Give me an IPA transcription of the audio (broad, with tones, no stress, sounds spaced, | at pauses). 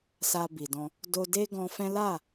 s a˧ b i˨ d ɔ̃˧ | d o˧ d e˦ ɡ ɔ̃˧ f ɛ̃˦ l a˦˨